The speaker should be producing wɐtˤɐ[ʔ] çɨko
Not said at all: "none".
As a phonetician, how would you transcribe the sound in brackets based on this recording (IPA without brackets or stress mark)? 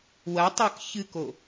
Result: k